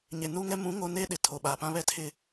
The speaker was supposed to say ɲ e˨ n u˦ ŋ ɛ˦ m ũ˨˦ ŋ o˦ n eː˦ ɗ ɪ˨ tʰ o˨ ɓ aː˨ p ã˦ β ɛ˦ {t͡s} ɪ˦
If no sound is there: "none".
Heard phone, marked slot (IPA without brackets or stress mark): tʰ